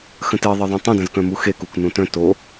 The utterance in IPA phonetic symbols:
x ə̃ t e ðˤ ə ðˤ ũ tˤ õ d ə̃ z k œ̃ m u x e k u k n ũ t œ̃ t o

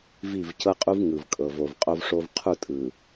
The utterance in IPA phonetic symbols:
v i˦˨ v c ɤ˦ qʼ u˦ v ŋ ɯ˨ v kʼ ɤ˨ v o˨ v qʼ o˦ v ʂ o˦ v qʰ u˦˨ tʼ ɯ˨

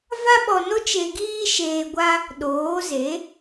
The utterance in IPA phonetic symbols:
v a˦ ɓ ɔ˧ n o˦ t͡ʃ e˧ ɡ iː˦ ʃ eː˧ ɡʷ a˦ | ɗ oː˨˦ z e˨˦

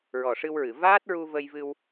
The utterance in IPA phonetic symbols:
ɹ ɔ˨˩ ʂ ɨ˧ w ɹ ɨ˨˩˨ v aː˦˥ t̚ ɹ u˧ v ə˧ j v ɨ˧ w

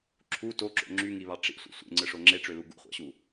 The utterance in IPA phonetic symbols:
ǁʰ u t o ǁ o̰ ŋ͡ǁ y ŋ i β ɑ ʈ͡ʂ ḭ sʷ ḭ sʷ ḛ ŋ͡ǀ ɯ ʂ o ŋ͡ǁ e ʈ͡ʂ ø l u ɡ ṵ χʷ ɑ̰ ɕ u

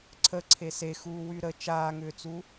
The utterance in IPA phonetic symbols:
ǀʰ ə ǀʰ e s e x uː w y ɾ ə t͡ʃ aː ŋ ʏː t͡s u

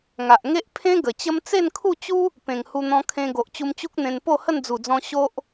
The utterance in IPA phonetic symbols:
ŋ a˨ ʔ ŋ e˦ ʔ pʰ ẽ˦ ɡ ə˨˩ t͡ɕ ə˦ m t͡s e˥˧ n kʰ u˥˧ t͡ɕ u˦ | p ẽ˨˩ ŋ h u˧ n̪ ɔ̃˧ kʰ ẽ˧ ɡ o˨ ʔ t͡ɕ u˧ m t͡ɕ u˦ k̚ n̪ ẽ˧ n p o˥˧ h ə˥˧ n d͡z u˨˩ d͡z ɔ̃˧ ɕ o˦ ʔ

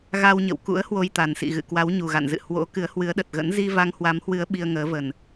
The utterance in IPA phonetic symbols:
ɣ a˧ w ɲ ə̰˧˨ w k ṵ˧˥ ə̯ h w o˧ j t̪ a˨˩ n s ḭ˧˨ ɣ ɨ̰˧˨ k w a˨˦ w ɲ u˨˩ ɣ a̰˧˨ n z ɨ̰˧˨ h w o̰˧˥ k ɨ˨˦ ə̯ h w ɨ˨˦ ə̯ ɗ ə˨˩ t̚ ɣ ə̰˧˥ n z i˧ v a˧ ŋ h w a˨˦ m h w ɨ˨˦ ə̯ ɓ i˧ ə̯ ŋ əː˨˦ v ə˨˩ n

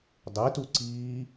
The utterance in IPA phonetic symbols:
dˤ e t u ǀ iː

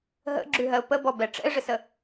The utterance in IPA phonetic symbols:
ɦ ə̰ ɡ͡ǁ ʉ ɦ ɜ ʊ̯ p ə b ɔ b ɛ ʈ͡ʂ ɛ̰ ɪ̯ ʐ ɪ s ə

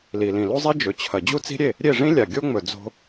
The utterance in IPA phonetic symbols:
l i˩ l ĩ˩ l u˥ zˤ i˥ d͡ʒ ɵ˩ t͡ɕʰ ɐ˩ d͡ʑ u˥ t͡s i̤˥ ɾʲ e˥˩ | ɾʲ e˥˩ ʐ ĩ˥ lʲ a˩ ɡʲ o˥ ŋ͡m ɵ˩ d͡z o̤˧

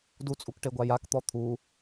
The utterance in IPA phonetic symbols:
d u t͡sʼ u k ʈ e ɡʷ a j a k t̪ ɔ t̪ʰ u

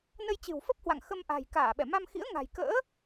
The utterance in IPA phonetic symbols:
n ə˧ j t͡ɕ ɨ̤˨˩ w f ə˦˥ p̚ h w a̰˧˨ ŋ x ə˧ m ʔ a̤˨˩ j k aː˧˩ ɓ ɛ˧˩ m a˧ m x ḭ˧˥ ə̯ ŋ a̤˨˩ j k ə̰ː˧˥

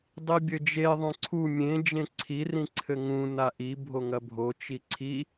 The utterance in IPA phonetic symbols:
dˤ i bʲ ɘ d͡ʒ e ðˤ õ ǀʰ u mʲ ẽ d͡ʒ ẽ ǀʰ i r ĩ ǀʰ ɘ ŋ ũ n a ʔ i bʱ o ŋ ɐ bʱ o t͡ʃ i ǀʰ i

